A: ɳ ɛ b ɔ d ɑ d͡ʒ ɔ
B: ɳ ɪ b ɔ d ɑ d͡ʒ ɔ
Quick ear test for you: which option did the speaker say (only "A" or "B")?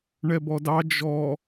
A